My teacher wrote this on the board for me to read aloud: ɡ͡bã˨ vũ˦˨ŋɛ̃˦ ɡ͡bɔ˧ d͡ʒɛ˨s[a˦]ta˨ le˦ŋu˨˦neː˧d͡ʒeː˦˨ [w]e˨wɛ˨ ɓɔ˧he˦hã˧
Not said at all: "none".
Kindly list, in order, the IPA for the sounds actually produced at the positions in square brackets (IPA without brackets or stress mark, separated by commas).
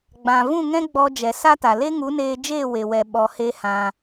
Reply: a˦, w